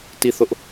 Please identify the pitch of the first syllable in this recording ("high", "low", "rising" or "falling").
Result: falling